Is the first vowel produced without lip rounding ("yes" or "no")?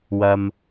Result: yes